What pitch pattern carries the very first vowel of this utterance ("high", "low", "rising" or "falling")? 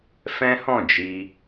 high